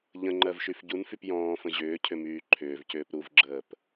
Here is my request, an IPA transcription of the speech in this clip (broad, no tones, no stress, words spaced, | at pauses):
ʎə̃ŋ͡ǃɜvʃyf ɟunfyp jɔ̃ːfə̃ ʑʏːcʰʏmyː ǃʰʏːvcʏːp ɾuvɡ͡ǁəːp